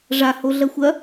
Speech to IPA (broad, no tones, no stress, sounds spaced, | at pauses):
ʐ a h o ɮ ɐ xʷ ɐ